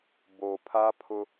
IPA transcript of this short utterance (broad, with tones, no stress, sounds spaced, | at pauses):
b o˨ pʰ a˦ pʰ ʊ˦